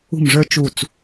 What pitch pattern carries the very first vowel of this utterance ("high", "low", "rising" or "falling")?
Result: falling